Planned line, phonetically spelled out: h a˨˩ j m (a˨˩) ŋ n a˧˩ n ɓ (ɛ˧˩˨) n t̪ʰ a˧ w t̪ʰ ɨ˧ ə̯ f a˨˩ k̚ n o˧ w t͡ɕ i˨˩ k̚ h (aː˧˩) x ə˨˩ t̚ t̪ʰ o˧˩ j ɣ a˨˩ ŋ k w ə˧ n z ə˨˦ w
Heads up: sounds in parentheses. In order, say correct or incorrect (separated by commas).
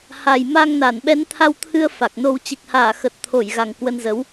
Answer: incorrect, incorrect, correct